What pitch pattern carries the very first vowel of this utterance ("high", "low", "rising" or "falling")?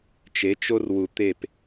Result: rising